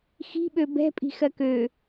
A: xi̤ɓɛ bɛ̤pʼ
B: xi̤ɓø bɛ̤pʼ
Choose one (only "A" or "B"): B